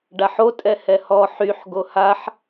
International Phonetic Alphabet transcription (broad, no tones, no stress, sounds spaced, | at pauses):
ɖ a ħ o tʼ ɛ h ɛ h ɔ ħ y ħ ɡ o h a ħ